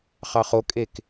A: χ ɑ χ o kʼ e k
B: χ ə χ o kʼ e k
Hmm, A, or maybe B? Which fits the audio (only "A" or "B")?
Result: A